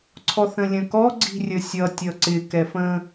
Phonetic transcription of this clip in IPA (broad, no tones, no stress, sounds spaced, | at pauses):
ǀʰ ɔ θ ə̃ lʲ ə̃ k ɔ ɡ͡ǀ i̤ rʲ ə sʲ ʌ tʲ ʌ ǀ ɪ k ɛ f ə̃